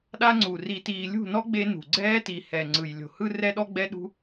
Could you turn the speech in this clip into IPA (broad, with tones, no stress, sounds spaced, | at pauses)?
ɗ a˦ ŋ͡ǀ u˨ r i˨ t iː˨ lʲ ṳ˦˨ n ɔ˦ ɡ͡b e˦ n ṳ˨ ɡ͡ǀ ɛː˦ t i˨ h ɛ˨ ŋ͡ǀ ɯ˨ j lʲ o̤˨ h ɯ˦ r ɛ˦ ɗ ɔ˦ ɡ͡b ɛ˦ ɗ ṳ˦